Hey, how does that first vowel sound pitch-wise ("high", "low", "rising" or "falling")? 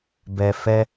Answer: low